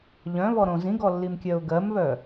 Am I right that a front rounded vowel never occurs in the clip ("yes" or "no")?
no